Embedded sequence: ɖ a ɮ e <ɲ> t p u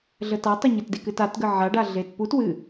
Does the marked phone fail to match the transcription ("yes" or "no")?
yes